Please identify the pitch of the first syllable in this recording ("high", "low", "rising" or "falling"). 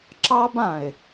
high